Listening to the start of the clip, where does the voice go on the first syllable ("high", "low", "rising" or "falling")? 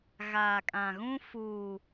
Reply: low